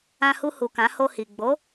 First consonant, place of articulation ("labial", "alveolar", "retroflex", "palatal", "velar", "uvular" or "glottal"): glottal